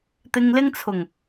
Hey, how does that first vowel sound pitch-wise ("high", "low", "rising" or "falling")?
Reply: low